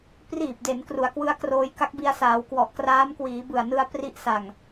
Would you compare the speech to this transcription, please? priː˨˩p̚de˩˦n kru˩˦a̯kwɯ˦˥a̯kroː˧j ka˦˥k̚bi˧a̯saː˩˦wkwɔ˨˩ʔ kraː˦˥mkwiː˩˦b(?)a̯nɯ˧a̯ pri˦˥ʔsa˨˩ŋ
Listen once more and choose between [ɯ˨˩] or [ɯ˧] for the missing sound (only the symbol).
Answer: ɯ˨˩